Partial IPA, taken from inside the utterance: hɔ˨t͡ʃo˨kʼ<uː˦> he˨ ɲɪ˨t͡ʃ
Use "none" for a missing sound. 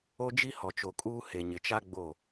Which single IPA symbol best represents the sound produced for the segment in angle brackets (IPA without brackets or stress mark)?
uː˦